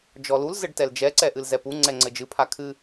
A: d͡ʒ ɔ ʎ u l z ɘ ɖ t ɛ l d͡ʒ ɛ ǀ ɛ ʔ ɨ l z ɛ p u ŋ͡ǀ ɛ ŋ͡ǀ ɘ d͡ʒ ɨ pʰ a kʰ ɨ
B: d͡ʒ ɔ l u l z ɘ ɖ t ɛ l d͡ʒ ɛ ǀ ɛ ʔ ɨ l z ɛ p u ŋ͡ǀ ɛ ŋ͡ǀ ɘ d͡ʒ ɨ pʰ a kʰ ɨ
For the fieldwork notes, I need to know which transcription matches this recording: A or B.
B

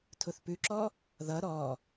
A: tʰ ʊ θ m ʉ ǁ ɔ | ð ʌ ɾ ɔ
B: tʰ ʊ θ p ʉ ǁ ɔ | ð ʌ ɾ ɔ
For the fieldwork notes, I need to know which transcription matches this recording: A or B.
B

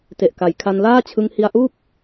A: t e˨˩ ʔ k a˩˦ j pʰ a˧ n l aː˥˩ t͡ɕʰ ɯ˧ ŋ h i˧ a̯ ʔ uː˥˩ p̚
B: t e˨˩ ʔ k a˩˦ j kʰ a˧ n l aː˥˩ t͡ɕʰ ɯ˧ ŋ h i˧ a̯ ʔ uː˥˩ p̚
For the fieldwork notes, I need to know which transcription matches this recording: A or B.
B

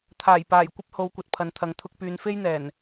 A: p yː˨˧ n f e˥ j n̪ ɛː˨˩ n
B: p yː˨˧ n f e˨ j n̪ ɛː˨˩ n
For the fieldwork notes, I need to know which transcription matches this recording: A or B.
A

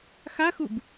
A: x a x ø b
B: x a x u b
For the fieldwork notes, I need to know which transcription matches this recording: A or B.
B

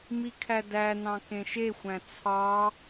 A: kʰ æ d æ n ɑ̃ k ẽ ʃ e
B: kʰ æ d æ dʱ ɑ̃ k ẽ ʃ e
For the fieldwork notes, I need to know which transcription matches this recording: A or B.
A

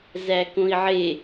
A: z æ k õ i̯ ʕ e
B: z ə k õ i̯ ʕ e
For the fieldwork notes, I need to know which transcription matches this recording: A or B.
A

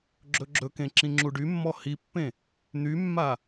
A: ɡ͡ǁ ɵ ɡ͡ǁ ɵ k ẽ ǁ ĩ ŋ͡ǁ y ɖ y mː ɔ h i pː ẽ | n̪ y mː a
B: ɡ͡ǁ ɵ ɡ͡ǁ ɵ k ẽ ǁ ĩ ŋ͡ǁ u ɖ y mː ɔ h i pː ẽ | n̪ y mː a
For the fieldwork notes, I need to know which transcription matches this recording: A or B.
B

